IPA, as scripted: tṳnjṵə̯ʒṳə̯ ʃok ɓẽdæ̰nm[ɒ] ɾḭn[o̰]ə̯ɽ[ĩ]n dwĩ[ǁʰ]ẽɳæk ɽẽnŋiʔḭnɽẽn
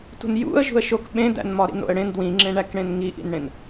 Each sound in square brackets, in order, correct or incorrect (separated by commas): correct, correct, incorrect, incorrect